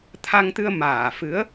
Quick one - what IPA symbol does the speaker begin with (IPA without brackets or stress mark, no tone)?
t̪ʰ